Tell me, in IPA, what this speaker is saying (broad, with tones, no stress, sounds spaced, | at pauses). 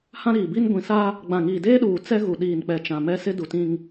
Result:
h ã˦ ɾ iː˨ b i˦ n ɡʷ ĩ˨ s a˦ | ɡ͡b ã˨ ŋ iː˨ d eː˦ ɗ uː˨ t͡s ɛ˦ ɣ u˨ ɗ iː˨ n k͡p ɛ˨ t͡ʃ ã˨ m ɛ˦ s ɪ˦ d u˨ t ĩ˦ ŋ